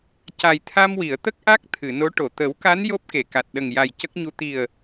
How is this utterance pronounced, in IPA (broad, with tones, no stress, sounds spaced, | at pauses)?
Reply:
c a˨˩ j t̪ʰ a˧ m w i˨˩˨ ə̯ t̪ ə˦˥ k̚ ʔ a˦˥ k̚ t̪ʰ ɨ˨˩˨ n o˧˥ ʈ o˨˩˨ t̪ ə˨˩˦ w k a˧˥ n j o˦˥ p̚ k e˨˩˨ k a˨˩ t̚ ɗ ə˨˩ ŋ j a˨˩ j c ə˦˥ k̚ ɲ u˧ t̪ i˨˩ ə̯